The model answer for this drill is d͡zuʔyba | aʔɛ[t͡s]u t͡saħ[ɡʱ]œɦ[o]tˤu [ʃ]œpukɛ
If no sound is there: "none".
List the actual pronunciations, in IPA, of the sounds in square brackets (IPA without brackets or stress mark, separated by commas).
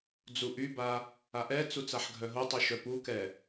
t͡s, ɡʱ, o, ʃ